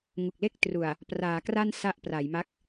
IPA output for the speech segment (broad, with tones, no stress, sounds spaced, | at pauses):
ŋ u˨˩ k̚ l e˥˩ k̚ t r u˨˩ a̯ | p r aː˩˦ k r a˥˩ n s a˥˩ ʔ p r a˩˦ j m a˦˥ k̚